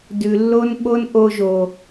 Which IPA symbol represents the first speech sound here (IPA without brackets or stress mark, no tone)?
d